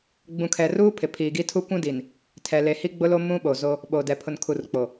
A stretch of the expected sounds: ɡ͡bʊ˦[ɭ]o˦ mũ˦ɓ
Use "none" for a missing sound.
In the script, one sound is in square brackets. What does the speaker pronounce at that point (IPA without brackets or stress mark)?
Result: l